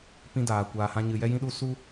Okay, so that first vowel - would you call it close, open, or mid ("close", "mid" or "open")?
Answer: close